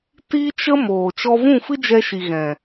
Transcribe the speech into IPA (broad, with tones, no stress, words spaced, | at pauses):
ti˦t͡ʃə˦ moː˨t͡ʃɔ˦ vũ˦˨fɨ˦d͡ʒɛ˧ʃi˨ ɣɛ̃˨